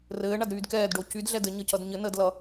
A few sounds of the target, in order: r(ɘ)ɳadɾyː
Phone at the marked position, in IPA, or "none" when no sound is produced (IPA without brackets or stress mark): ɘː